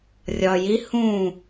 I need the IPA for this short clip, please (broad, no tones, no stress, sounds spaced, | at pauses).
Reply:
rʲ ɒ j i h ũ